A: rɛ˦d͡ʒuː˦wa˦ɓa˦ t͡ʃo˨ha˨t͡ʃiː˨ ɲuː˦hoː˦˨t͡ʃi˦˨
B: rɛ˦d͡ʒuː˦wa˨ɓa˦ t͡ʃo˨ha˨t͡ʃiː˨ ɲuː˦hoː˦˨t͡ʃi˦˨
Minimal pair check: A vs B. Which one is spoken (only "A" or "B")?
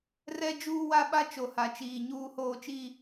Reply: A